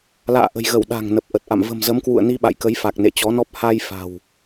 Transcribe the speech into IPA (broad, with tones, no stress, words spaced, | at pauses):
la̰ː˧˨ ʔə̤˨˩jɣə˧˩w ɗa̤˨˩ŋ nə˨˩p̚ʔə˨˩t̚ʔa̰˧˨m və̤˨˩mzə˨˦mkwṵ˧˨ə̯ ni˧ɓa̰˧˨jkə˨˦jfa˨˩k̚ nḛ˧˨t͡ɕɔ˨˦nɔ˦˥p̚ ha˧j fa̤˨˩w